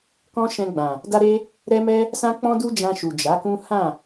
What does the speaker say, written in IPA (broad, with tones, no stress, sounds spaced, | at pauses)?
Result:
k ɔ̃˦ ʃ ɛ̃˧ ɡ͡b ã˨ | d a˦ ɾ e˦ | ɾ ɛ˦ m ɛ˦ | s ã˦ k͡p ɔ̃˦ d u˦ d͡ʒ ã˧ ʃ u˨ d͡ʒ a˨˦ k ũ˦ h ã˦˨